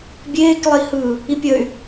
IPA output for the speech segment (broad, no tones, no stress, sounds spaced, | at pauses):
bʲ eː k lˠ i h ɯ | i pʲ ə y̯